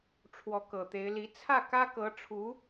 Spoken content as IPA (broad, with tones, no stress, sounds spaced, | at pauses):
ʈ͡ʂʰ w ɔ˧˥ k ɤ˨˩ t̪ e˧˥ ɪ̯ l i˧˥ t͡sʰ ä˥˩ k ä˥ k ɤ˧˥ ʈ͡ʂʰ u˧˥